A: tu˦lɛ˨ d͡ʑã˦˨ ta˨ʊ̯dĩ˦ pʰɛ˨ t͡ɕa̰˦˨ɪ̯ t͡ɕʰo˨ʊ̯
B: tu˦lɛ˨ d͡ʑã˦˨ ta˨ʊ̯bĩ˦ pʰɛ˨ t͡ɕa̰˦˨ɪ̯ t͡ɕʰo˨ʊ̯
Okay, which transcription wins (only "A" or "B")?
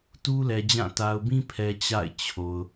B